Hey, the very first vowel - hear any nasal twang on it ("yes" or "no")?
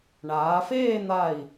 no